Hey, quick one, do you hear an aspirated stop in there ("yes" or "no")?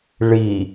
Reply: no